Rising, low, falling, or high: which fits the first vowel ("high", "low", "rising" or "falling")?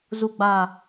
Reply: low